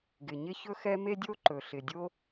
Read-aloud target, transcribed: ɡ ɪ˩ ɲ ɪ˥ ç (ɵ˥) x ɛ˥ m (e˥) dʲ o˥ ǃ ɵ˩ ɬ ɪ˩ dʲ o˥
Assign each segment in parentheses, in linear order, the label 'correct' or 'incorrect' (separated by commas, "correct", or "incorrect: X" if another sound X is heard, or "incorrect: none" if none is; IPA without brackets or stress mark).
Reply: correct, correct